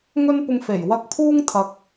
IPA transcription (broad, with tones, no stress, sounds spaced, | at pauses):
ŋ ɵ˥ n p ʊ˧ ŋ f e˨˩ j w ɐ˧ k̚ pʰ uː˥ ŋ t̪ʰ ɐ˨ k̚